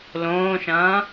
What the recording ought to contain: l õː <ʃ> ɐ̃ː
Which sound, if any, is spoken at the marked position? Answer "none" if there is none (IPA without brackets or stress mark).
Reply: ʃ